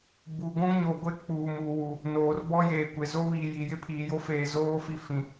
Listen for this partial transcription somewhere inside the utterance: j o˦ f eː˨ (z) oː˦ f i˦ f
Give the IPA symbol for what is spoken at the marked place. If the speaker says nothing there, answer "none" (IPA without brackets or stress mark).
z